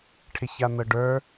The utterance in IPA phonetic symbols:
ʈʰ ɪ ç a n ɤ ɖ ə˞

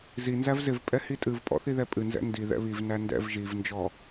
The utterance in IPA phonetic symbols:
z i n z æ v z ɪ v pʼ ɛ h i tʼ ɨ v pʼ ɔ̰ θ i ð ɛ pʼ ɨ n z ɛ̰ n d i ð ɛ̰ β i v n æ n d ɛ̰ v ʒ i v n d͡ʒ ɔ

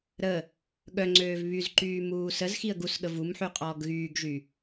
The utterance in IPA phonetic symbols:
ɾ ə | ɠ œ ŋ͡ǀ øː v β y z ǃ yː m uː s ə z x i ə̯ ɡ u s ɠ ə v u m ħ y qʼ ɔː ɡ ɣ yː ɡ ʒ y

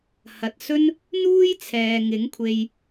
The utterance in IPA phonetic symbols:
h ɐ˨ t̚ s ɵ˥ n | n̪ uː˥ j t͡sʰ ɛː˨ ŋ ɪ˨˥ ŋ kʷʰ e˧ j

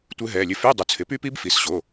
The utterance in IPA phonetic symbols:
tʷ ɘ˦˥ ɦ ɛ˩˧˩ lʲ ɘ˦˥ f y˧˥˧ dˤ u˩˥ t͡sʰ ɪ˩˥ p y˦˥ p i˦˥ b f i˩˧˩ s ɕ o˩˧˩

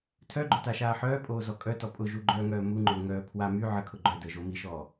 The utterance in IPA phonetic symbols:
tʰ œ ɡ͡ǃ ʊ t a ʃ aː ħ œː pʼ oː z ɔ kʼ œ t ɔ pʼ ʊ ʒ u ɡ͡ǃ œː ŋ œː m u ŋ͡ǃ ʊː ŋ œː pʰ w a m y ʕ ə kʰ ʊ ɡ͡ǃ œ d əː ʒ o m i ʃ ɔː

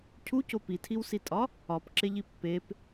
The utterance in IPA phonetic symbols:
cʰ u c o p i tʰ i w s i tʼ ɒ | ɒ p ǁ e ʎ i pː e p

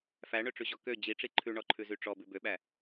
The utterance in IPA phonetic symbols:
f æ ɳ ø ʈ͡ʂ ʉ ʑ ɔ k ø d͡ʑ i ʈ͡ʂ i ǃʰ ʉ ɳ ɔ ǃʰ ʉ z y ʈ͡ʂ ɔ b ʉ b ø ɓ æ

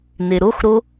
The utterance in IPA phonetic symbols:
n e ɾ o x ɾ o

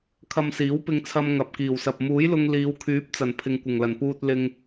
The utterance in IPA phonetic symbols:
kʰ ɐ˧ m s iː˨˥ w p ɪ˧ ŋ t͡sʰ ɐ˧ m ŋ ɐ˨ p̚ k iː˨˩ w s ɐ˨ p̚ m uː˨˥ j l ʊ˧ ŋ l iː˨˧ w kʰ yː˨˥ p̚ t͡s ɐ˨˩ n pʰ ɪ˨ ŋ kʷ ɪ˨˩ ŋ l ɐ˨˩ n p uː˧ t̚ l ɪ˧ ŋ

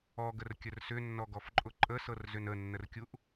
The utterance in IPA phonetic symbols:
ɔ ɡ ə r kʲ ə r s ʏ nː ɔ ɡ ɔ f ǃʼ ʊ ǃʼ ə s ɤ r z ʏ n ə nː ə r kʲ u ʔ

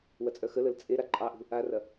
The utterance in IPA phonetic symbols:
w ɐ t͡sʼ œ x ə l ə l t͡sʼ e ɾ a ǃʼ ɑ ʔ ṳ | a r ɐ

